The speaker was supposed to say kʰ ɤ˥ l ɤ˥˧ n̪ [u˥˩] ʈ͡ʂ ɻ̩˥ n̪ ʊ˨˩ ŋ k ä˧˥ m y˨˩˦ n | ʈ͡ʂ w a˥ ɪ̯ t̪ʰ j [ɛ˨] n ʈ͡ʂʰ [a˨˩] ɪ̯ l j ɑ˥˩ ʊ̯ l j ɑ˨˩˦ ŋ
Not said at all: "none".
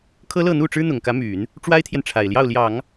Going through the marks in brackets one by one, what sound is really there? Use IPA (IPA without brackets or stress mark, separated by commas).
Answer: u˥˩, ɛ˨, a˨˩